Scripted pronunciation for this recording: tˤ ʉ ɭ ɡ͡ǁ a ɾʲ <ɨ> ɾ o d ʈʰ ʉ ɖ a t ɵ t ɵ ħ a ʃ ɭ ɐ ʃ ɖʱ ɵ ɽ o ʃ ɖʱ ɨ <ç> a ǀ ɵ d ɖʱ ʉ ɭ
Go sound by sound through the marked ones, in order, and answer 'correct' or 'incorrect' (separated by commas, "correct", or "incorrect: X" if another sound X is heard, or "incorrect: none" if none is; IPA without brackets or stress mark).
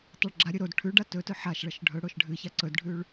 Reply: correct, correct